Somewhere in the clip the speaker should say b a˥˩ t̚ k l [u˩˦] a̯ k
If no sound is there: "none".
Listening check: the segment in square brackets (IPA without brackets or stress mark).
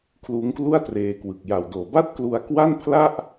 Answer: u˧